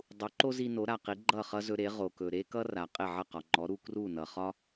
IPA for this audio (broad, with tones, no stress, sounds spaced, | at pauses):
dˤ u˩˥ ǃ o˥ z i˧ n o˩˥ ɾ a˩ q i˩˥ ɡ͡ǃ ʌ˥˩ χ ʌ˥ z ɵ˧ ɾ e˩˥ ʁ o˩ k ɵ˩ ɾ e˥ k ʌ˥ r a˩ qʼ e˥˩ ʕ ʌ˥˩ q ɒ˩ ŋ͡ǃ ɔ˩˥ ɾ u˧ k r u˥˩ n ʌ˩ χ ɒ˥